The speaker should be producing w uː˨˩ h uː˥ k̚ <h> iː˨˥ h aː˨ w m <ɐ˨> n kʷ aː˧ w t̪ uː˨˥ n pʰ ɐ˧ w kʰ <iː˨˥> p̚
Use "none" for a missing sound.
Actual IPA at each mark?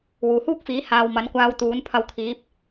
f, ɐ˨˥, iː˨˥

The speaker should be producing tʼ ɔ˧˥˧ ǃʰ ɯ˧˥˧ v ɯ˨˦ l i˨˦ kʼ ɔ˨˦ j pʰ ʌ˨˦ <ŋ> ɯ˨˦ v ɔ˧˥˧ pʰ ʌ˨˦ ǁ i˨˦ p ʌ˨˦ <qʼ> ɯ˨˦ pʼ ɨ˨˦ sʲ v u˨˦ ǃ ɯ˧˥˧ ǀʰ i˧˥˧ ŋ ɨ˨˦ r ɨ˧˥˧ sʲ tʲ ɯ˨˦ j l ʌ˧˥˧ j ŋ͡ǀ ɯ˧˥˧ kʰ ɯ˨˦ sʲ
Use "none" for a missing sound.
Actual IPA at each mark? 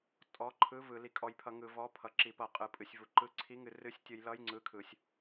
ŋ, qʼ

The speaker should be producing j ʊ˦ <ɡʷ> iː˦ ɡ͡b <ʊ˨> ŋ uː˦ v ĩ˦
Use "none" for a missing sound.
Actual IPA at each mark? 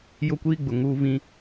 kʷ, ʊ˨

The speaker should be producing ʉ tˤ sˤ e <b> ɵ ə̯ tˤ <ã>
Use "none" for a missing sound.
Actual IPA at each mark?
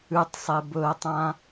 b, ã

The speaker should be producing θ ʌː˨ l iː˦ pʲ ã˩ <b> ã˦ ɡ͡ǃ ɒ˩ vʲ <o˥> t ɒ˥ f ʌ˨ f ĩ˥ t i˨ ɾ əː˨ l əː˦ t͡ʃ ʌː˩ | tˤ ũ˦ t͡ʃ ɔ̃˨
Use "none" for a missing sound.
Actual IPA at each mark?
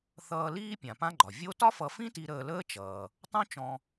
p, o˦

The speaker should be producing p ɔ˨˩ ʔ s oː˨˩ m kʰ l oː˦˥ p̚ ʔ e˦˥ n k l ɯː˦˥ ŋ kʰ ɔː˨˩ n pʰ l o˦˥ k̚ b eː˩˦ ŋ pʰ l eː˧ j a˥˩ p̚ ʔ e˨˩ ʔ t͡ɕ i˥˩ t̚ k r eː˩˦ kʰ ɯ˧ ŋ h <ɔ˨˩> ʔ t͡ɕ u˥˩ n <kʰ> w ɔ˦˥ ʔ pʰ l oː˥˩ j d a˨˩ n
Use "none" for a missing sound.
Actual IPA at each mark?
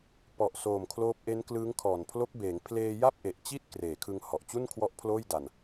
ɔ˨˩, kʰ

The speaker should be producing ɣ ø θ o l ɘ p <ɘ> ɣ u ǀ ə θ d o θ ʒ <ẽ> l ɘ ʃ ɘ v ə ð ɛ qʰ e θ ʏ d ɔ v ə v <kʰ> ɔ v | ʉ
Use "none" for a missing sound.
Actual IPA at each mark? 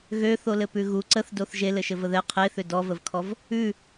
ʉ, e, kʰ

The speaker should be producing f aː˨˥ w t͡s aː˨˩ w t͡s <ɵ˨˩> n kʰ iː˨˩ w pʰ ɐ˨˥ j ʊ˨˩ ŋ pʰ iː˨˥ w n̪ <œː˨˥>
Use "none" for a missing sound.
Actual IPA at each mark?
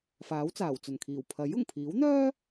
ɵ˨˩, œː˥

